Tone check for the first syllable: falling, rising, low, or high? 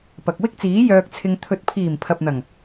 low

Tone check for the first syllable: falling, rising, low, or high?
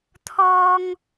high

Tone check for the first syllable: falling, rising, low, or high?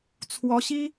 rising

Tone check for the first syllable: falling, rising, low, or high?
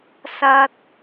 low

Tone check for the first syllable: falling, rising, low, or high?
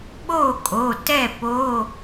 falling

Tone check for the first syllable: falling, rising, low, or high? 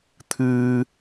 high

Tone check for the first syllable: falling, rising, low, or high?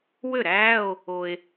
falling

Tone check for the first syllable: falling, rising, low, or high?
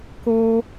high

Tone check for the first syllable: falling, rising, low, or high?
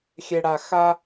high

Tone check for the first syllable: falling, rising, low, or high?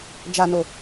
low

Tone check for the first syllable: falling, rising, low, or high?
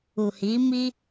low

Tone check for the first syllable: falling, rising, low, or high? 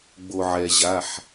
low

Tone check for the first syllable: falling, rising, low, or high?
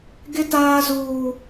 high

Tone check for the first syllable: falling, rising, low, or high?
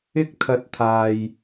high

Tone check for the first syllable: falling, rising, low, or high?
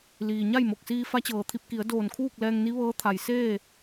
low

